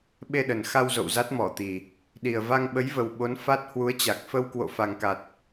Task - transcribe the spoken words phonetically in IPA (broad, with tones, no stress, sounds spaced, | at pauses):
ɓ e˧ ɗ ə˨˩ n x a˧ w z o̰˧˨ w z a˦˥ t̚ m ɔ˧˩ t̪ i˨˩ | ɗ i˨˩ ə̯ v a˧ ŋ ɓ ə˨˦ j v ə˨˩ w ɓ o˨˦ n f a˦˥ t̚ h w u˨˦ ə̯ t͡ɕ a˨˩ k̚ f ə˧ w k w o̰˧˨ f a˨˩ ŋ k a˨˩ t̚